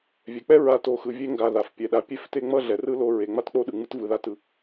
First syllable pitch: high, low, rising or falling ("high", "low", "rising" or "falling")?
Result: low